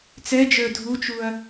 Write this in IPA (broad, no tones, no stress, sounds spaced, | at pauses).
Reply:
t͡s ɛ d͡ʒ ə˞ dʱ u t͡ʃ u ɐ̯